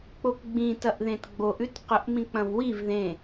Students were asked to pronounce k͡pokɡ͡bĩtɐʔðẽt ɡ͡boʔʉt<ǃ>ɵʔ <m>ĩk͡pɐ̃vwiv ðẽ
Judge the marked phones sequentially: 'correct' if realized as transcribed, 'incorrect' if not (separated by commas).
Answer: incorrect, correct